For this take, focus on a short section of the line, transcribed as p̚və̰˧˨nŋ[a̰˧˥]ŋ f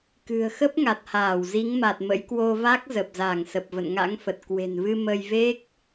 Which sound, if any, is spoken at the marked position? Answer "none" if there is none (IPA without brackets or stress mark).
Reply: a̰˧˥